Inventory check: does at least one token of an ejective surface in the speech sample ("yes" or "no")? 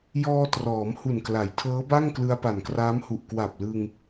no